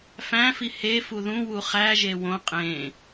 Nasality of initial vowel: nasal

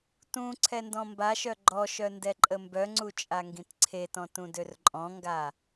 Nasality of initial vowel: nasal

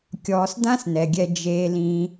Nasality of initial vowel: oral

